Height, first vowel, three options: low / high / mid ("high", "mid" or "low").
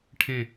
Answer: mid